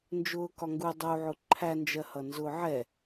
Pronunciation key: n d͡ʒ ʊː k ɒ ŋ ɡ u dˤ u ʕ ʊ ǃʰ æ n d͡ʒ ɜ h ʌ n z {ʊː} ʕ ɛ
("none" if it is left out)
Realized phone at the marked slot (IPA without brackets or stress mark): ʊː